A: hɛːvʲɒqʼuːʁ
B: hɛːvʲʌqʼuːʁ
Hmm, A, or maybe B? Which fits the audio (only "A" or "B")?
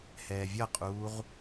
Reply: B